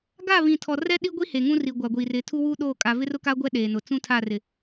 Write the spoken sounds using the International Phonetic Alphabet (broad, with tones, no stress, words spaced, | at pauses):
ɡa˦˨ βĩ˨tʰɔ˨rɛ˦ ɗi˦ɡʷi˦ heː˨ŋũ˦ri˨ ɡʷa˨ɡʷiː˨rɪ˨˦ tʰu˦wuː˦ɗoː˦˨kʼa˨ vɪ˦rʊ˦kaː˦ ɡʷɛ˦ɗeː˨nʊ˨ t͡sũ˦tʰa˦˨rɪ˨